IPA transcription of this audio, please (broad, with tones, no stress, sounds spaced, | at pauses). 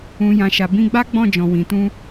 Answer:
ũ˨ j ã˨ ʃ a˨ b ĩ˧ ɡ͡b a˦ ɡ͡b ɔ̃˦˨ d͡ʒ ɔ̃˨ w ĩ˨ t ũ˧